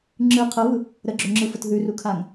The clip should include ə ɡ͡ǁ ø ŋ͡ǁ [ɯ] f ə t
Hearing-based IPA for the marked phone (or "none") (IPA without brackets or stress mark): ɯ